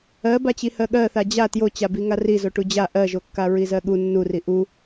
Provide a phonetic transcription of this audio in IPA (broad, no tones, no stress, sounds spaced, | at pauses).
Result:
ɜ b a t͡ɕ i h ɜ ɠ ɜ θ a d͡ʑ a t j o t͡ɕ a b i ŋ a r i z o ʈ u d͡ʑ a ʔ ɜ ʒ o kː a ɹ i z ɜ ɠ u nː u r i ʔ u